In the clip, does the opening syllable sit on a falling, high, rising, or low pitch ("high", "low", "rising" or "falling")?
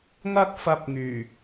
high